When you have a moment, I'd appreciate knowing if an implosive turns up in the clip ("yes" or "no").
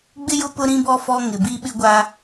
yes